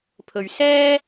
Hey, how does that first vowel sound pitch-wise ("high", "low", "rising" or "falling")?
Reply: low